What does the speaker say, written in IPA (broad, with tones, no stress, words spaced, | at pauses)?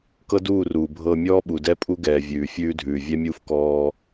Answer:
kɤ˦duː˦˨ruː˨bʱɤː˧ mʲɔː˦ɓu˨ dɛ˧pʼu˧ɡɛː˨ vʲʉː˨fʲʉː˧dʱʉː˨ vʲɛ˦mʲuː˦f kɔː˧